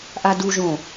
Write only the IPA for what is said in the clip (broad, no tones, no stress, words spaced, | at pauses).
ʔaduʒõ